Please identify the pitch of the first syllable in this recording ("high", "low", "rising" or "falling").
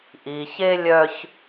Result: low